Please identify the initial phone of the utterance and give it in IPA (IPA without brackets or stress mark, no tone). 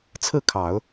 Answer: t͡sʰ